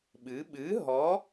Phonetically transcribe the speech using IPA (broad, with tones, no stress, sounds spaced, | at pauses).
ɓ ɨ˩˧ ɓ ɨ˨˥ ɦ ɔ˨˥